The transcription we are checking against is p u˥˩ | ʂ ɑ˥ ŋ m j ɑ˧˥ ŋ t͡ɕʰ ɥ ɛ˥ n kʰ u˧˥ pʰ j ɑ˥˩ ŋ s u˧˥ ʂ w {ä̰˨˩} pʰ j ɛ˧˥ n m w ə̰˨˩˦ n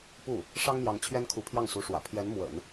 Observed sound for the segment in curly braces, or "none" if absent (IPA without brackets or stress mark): ä̰˨˩